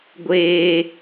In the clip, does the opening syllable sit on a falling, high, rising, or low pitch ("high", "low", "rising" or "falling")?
high